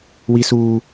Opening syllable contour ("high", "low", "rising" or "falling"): high